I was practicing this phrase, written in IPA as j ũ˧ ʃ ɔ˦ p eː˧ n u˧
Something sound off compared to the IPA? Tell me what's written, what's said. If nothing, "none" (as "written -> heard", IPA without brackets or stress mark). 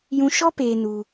none